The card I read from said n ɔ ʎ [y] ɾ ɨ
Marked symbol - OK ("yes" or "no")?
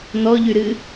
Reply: yes